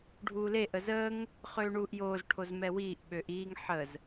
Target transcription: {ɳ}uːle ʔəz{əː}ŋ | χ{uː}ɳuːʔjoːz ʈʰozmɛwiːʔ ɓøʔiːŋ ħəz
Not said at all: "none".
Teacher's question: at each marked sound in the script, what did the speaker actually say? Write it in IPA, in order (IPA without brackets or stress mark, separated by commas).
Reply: ɖʱ, əː, øː